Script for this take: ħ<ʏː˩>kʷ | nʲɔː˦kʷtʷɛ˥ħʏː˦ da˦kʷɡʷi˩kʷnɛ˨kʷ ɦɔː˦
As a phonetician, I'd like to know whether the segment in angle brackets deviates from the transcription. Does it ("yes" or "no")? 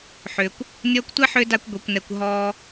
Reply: no